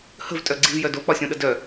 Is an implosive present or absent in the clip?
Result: present